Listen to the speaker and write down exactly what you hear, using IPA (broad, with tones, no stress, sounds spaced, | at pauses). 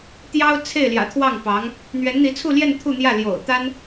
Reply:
t̪ j ɑ˥ ʊ̯ t͡sʰ e˥˩ ɪ̯ l j ä̰˨˩ t̪ʰ w ɑ˥˩ ŋ p ɑ˧˥ ŋ | n̪ ɥ ɛ˧˥ n n̪ i˧˥ t͡sʰ u˥˧ l j ɛ˥˧ n t̪ʰ u˥˧ n̪ j ä˥˩ l j o̰˨˩ ʊ̯ t̪ a˥ n